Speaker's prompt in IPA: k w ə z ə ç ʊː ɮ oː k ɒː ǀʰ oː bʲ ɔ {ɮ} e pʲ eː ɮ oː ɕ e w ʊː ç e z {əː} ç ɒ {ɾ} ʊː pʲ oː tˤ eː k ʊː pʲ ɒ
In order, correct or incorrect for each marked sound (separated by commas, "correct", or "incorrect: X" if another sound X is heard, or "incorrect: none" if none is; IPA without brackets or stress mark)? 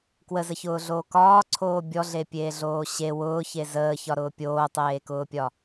correct, correct, correct